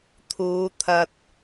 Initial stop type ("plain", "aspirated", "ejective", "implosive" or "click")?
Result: aspirated